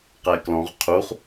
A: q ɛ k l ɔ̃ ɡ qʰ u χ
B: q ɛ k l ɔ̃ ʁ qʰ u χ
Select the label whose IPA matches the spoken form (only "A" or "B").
B